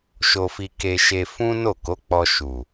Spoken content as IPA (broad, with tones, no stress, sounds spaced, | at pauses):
ʃ o˧ f i˧ k e˧ ʃ e˧ f ũ˦ n o˦˨ k o˨˦ k͡p ɔ˧ ʃ u˨